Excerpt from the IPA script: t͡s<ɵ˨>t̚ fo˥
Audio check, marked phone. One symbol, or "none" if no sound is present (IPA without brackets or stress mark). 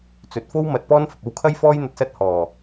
ɵ˨˥